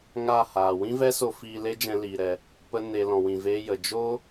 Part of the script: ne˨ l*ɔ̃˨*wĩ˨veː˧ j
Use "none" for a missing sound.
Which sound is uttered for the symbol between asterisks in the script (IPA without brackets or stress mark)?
ɔ̃˨